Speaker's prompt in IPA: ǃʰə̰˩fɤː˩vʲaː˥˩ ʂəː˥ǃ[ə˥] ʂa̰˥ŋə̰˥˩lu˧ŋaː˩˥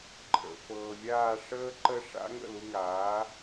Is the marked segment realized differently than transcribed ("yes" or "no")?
no